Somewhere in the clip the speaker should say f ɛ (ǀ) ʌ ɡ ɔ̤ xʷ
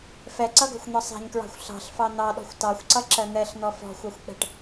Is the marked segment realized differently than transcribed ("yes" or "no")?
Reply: no